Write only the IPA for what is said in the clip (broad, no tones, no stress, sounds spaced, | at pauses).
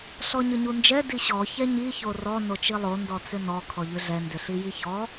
ɬ ɔ ɲ ʏ ɲ u n d͡ʒ ɛ d i ɕ ɔ ç ɛ ɲ i ç o r ɔ n o t͡ʃ i lˠ o n d ɔ t͡s ʏ n ɔ kʰ ɔ ʎ ʏ ɮ ɛ n d ʏ ɬ i j i ç ɔ